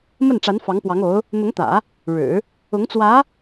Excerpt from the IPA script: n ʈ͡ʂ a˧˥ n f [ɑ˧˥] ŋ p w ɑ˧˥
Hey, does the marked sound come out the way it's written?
yes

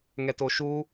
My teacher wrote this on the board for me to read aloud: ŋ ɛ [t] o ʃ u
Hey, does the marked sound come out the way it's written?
yes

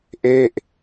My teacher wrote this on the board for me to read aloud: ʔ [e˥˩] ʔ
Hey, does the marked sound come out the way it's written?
yes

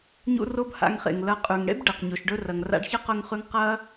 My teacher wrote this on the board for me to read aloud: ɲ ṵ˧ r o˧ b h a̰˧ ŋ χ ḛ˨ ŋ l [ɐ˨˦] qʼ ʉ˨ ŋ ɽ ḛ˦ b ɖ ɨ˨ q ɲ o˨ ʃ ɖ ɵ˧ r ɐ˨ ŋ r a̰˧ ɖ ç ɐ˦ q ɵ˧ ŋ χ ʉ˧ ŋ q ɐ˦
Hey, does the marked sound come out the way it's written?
yes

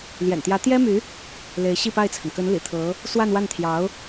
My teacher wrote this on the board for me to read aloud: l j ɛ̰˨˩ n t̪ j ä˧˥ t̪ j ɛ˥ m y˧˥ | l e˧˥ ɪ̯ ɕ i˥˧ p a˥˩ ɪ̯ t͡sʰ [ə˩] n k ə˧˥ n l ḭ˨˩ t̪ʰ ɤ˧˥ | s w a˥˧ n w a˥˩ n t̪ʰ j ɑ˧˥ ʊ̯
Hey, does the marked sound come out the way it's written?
yes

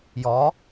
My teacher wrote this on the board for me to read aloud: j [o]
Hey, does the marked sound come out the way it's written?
no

